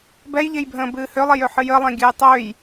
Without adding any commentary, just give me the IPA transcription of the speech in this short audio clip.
b ɛ j ʎ e j bʱ ə̃ː b ɨː h ø lˠ e j ø ħ ɨ j ə lˠ ẽ ɡʲ ɨ j tˤ ø j

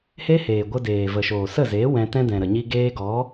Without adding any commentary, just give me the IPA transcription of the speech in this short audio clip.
h e˦ h eː˨ ɡʷ ə˧ d eː˨ v ə˨ ʃ oː˨ s ə˦˨ z eː˨˦ w ɛ̃˧ t ɛ̃˧ d ɛ̃˨ ɾ ə˨ ɲ i˧ ɡ eː˧ ɡ ɔ˨˦

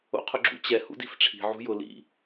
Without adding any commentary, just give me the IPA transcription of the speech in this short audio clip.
o̰ qʰ ʊ ɡ͡ǁ ṵ t͡ɕ ɛ h ṵ d i̤ f ʈ͡ʂʰ i̤ ʕ ṳ j ʊ l ḭ

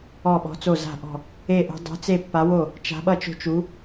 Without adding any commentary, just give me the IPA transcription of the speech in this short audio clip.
ɔ˥˨ ɓ ɔ̤˧˥ t͡s o˥˨ z a̤˥˨ ʔ ɔ̤˥˨ | e˥˨ ʔ o̤˧˥ dˤ o̤˧˥ t͡s e˥˨ pː a˧˥ w o˥˨ | t͡ʃ a̤˧˥ ɓ ʌ˥˨ t͡ʃ o̤˥˨ t͡ʃ u˧˥

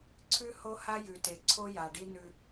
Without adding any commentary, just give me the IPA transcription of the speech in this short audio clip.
ǀʰ ʉ˦ h o˦ h a˦ j ʉ˨ t e˨ ǀʰ o˦ j a˨ ɖ i˦ n ʉ˦

